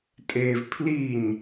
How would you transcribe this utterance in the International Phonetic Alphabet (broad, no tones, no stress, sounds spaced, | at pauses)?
tʼ e v pʰ l i ɲ